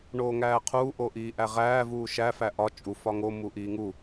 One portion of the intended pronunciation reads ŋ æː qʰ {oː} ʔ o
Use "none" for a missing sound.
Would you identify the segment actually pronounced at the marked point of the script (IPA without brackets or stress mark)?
uː